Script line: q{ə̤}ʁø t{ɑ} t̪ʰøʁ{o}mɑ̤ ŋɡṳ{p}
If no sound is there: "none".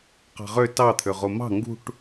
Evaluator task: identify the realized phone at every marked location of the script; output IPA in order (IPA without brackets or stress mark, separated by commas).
ɑ̤, ɑ, o, ʈ